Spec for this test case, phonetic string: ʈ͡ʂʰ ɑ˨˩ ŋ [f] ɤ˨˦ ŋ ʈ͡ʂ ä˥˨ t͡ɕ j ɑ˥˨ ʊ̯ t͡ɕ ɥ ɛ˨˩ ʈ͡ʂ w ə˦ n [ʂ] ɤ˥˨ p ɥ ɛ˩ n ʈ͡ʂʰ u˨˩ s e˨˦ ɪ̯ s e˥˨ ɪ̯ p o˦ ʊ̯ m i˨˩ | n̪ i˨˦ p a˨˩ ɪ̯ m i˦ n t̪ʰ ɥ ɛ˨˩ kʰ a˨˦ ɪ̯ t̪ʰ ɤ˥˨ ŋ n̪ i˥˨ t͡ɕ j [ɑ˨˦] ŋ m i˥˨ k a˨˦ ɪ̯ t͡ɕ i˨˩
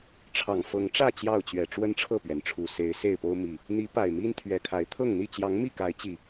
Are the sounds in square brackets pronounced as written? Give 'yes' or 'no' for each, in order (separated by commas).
yes, no, yes